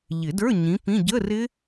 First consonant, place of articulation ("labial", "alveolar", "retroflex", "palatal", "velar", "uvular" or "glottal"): palatal